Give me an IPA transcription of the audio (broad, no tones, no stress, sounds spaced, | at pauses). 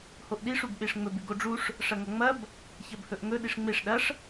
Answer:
h o ʔ ɗ i ʂ u b ɓ e ʂ ŋ͡m ɵ b ʉ ɡ o ɖ͡ʐ u ʂ | ʂ ɐ ŋ ɐ ŋ͡m ɐ b | ç ɐ b h ɵ ʔ ŋ ɵ ɗ i ʂ ŋ͡m e ʂ ɗ ɐ ʂ